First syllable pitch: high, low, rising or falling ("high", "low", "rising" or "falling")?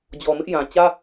low